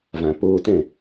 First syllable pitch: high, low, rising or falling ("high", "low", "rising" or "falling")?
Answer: low